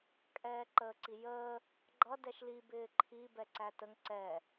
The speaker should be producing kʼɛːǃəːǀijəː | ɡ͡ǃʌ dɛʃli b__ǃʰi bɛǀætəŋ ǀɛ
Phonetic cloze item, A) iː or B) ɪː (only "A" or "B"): B